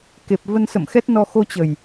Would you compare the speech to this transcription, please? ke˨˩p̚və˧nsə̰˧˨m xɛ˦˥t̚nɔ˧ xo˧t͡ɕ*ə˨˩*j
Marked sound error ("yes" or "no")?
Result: no